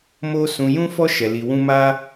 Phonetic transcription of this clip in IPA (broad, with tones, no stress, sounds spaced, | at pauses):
m o˦ s ũ˧ j ũ˦ f ɔ˦ ʃ ɛ˧ l i˧ w ũ˦ m a˦